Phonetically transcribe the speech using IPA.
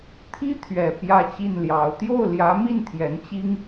t̪ʰ i˥ t̪ʰ ɥ ɛ˨˩ p j ä˥˧ t͡ɕ i˥˩ n l j ɑ˧˥ ʊ̯ t̪ j o˥˩ ʊ̯ l j ä˧˥ m i˥˩ n t̪ʰ j ɛ˧˥ n t͡ɕ i˥ ŋ

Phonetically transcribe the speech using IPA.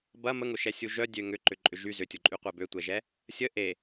b ɐ m ə ŋ ʊ ʃ ɛ sʲ u ʒ œ dʲ ø ŋ ʏ ǃ ʏ ǃʼ ʏ ʒ y z ʏ tʲ o ǃʼ y qʷ ɛ b ø tʷ ɛ ʒ ɛ | sʲ ə ʔ e

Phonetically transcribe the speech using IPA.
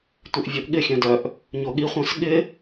tʷ ɪ ʔ vʲ o ʔ ɠ ɪ xʲ œ̃ d œ ʔ | ɲ o ɠ i χʷ œ̃ s ɠ ɪ

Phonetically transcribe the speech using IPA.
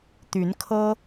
t̪ y˨˦ n kʰ ɤ˦

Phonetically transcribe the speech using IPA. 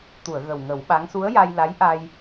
t̪ u˨˩˨ ə̯ ɣ ə˨˩ w ŋ ə˨˩˦ w ɓ a˧˥ ŋ s u˧˥ ə̯ j a˧ j l a˧˥ j ʔ a˧ j

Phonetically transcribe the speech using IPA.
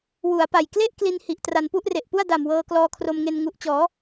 w u˩˦ a̯ p a˨˩ j k l e˥˩ ʔ k l i˧ n h i˨˩ ʔ t r a˧ n p u˥˩ ʔ r e˨˩ ʔ p u˥˩ a̯ d a˨˩ m w ɤː˧ k l ɔː˧ kʰ r o˧ m ŋ e˧ n ŋ u˨˩ ʔ t͡ɕ ɔː˩˦

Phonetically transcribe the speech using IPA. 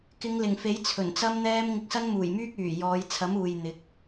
k ɪ˨˧ ŋ l ɪ˨˩ ŋ f e˨˥ j t͡sʰ ɵ˨˩ n t͡s ɐ˥ m n̪ ɛː˥ m ŋ ɪ˧ k̚ s ɐ˥ n m uː˨˩ j m yː˥ k̚ yː˨˩ j ɔː˨˧ j t͡sʰ ɐ˨˥ m uː˨ j n̪ ɪ˨˥ k̚

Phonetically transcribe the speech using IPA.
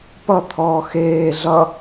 p ʌ t̪ʰ ɔː x eː ɮ ʌ

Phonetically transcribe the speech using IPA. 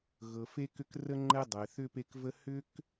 ɣ ɤ˩ f e˦ k ʏ˦ k r ə˥ ŋ͡ǃ ɛ˥ dˤ ɛ˩ θ ʏ˥ p e˦ k v ə˥ h ʏ˥ k

